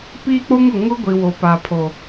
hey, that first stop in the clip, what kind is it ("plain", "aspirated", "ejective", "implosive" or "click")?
plain